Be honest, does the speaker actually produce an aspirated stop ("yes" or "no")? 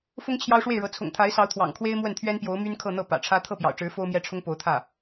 yes